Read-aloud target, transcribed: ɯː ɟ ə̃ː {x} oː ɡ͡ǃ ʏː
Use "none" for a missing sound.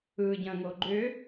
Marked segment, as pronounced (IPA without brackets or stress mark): ŋ